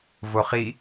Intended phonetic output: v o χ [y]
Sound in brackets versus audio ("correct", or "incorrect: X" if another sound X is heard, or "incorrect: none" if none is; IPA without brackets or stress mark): incorrect: i